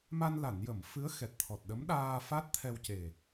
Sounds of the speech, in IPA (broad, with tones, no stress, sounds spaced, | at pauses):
m a˧ n l a˨˩˨ n j ə˨˩˨ m f ɨ˧˥ ə̯ x ɛ˨˩ t̚ t̪ʰ ɔ˨˩ t̚ ɗ ə˧˥ m ɗ aː˧ f a˦˥ t̚ t̪ʰ ɛ˧ w c e˨˩